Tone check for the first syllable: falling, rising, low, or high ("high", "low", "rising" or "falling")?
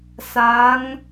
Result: rising